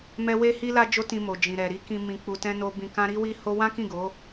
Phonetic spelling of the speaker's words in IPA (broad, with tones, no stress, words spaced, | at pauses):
mɛ˦ we˦hi˦la˦ d͡ʒo˦tĩ˧mo˨ d͡ʒĩ˨ ɾɛ˨ɾi˨˦kĩ˧ mĩ˧k͡pu˧tɛ̃˦no˦ bĩ˧kã˦ ɾi˦wi˦ho˦ wã˦kĩ˦˨ ɡo˨˦